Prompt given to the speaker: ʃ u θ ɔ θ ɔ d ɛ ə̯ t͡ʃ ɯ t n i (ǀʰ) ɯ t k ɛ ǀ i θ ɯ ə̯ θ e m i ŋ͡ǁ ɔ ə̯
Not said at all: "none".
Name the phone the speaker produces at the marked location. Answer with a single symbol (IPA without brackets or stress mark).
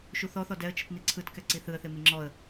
ǀʰ